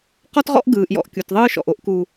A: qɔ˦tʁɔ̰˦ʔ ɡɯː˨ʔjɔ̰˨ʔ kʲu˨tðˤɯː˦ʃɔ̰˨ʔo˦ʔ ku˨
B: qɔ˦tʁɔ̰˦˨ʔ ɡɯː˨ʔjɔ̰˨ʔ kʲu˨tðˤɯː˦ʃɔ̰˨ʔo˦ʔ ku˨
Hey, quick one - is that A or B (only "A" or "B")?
A